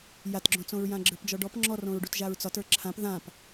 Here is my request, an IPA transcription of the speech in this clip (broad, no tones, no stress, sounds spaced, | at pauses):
j a t ɡ͡ǁ õ t͡s õ ɹ j ã ɡ͡ǁ ə˞ p d͡ʒ ɔ ɖ ɔ p ŋ͡ǁ ɔ r õ ɹ ɖ u t ʒ a ɹ t͡s ɒ t ə˞ ǁʰ ã p ð ã p